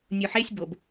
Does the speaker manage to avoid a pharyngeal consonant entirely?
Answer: no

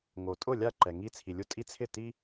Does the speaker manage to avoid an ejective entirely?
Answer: no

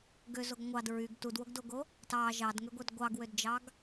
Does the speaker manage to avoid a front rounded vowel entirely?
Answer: no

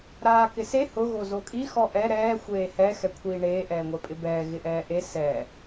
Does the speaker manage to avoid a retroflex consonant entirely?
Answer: no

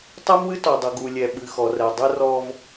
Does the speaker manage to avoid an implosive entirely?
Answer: no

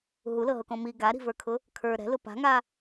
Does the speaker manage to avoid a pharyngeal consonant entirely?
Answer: yes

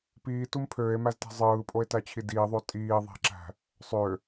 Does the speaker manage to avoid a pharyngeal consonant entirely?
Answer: yes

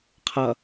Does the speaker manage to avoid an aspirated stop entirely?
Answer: no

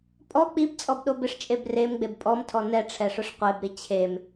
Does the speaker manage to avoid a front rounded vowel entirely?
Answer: yes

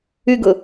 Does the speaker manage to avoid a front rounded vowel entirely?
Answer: no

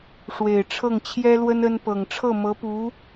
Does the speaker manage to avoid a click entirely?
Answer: yes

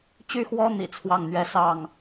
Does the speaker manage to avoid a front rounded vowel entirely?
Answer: no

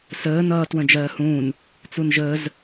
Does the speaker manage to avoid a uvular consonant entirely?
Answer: yes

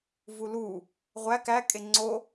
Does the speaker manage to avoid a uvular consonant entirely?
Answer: no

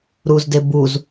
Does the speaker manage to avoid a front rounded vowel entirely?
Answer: yes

